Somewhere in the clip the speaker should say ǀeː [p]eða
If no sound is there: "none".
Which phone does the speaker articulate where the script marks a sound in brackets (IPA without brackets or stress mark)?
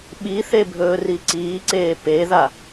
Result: p